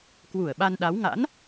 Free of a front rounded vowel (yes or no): yes